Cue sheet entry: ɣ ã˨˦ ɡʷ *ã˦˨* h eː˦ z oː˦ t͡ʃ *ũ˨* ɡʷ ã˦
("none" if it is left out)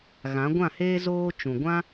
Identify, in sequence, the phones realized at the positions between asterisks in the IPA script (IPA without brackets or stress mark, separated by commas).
ã˦˨, ũ˨